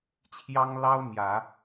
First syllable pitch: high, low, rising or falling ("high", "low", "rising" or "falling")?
high